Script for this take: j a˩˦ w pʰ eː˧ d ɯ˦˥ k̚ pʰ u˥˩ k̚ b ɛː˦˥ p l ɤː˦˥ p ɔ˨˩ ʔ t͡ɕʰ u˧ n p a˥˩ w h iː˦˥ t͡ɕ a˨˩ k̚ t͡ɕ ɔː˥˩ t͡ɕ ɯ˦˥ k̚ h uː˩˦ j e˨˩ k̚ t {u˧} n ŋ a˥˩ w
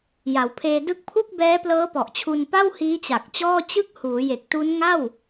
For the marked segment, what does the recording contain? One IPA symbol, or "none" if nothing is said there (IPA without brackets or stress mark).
u˦˥